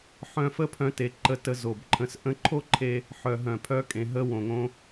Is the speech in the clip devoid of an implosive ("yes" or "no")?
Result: yes